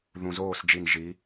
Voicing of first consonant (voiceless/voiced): voiced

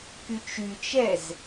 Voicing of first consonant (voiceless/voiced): voiceless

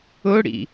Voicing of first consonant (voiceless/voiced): voiced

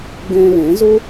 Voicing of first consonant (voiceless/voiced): voiced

